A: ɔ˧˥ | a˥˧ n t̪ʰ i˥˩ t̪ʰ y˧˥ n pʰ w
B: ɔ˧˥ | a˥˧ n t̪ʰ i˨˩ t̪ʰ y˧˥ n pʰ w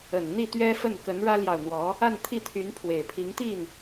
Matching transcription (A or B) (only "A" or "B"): A